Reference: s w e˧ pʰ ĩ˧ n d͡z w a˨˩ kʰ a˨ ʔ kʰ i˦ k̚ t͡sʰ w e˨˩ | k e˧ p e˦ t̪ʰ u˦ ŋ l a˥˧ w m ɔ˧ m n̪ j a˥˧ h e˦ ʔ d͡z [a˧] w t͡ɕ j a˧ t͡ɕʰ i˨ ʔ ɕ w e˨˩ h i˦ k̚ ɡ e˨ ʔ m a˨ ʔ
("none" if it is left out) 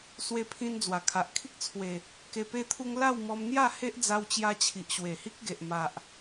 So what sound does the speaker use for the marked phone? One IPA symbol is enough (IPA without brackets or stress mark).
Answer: a˧